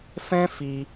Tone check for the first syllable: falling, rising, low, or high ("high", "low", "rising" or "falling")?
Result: high